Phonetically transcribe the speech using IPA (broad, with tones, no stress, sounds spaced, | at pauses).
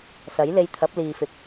s ɐ˨˥ j l e˧ j t̪ʰ ɐ˨˥ p̚ l iː˨ f ɪ˨˥ k̚